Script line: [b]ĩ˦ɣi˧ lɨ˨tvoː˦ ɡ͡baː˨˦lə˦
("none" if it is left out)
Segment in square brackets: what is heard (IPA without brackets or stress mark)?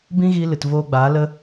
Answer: b